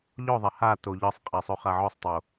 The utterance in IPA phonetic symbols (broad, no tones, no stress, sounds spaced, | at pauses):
ʎ ɔ ðˤ ɛ h a t o ʎ ɤ sˤ qʼ i sˤ o χ a ʕ ɔ sˤ tˤ o